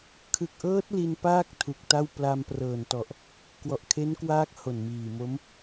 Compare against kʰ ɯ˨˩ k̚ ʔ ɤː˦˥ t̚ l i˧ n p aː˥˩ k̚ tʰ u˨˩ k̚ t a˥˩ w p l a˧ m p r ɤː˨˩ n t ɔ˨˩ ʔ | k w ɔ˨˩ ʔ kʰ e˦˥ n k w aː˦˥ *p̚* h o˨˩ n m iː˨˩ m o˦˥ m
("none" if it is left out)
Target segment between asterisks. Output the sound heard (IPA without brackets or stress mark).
k̚